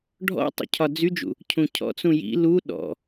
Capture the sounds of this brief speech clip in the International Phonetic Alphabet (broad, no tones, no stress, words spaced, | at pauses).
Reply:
ɖʱɔ̰tˤṵ cʰɒd͡zyd͡ʒṵ | cʰũcʰɔ̰t͡sũ jḭ lu ɗɔ̰